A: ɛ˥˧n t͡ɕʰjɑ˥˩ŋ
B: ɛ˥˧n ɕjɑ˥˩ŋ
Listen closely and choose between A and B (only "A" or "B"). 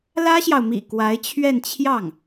A